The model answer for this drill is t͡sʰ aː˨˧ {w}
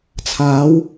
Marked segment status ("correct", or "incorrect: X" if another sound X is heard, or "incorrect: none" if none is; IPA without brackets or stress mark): correct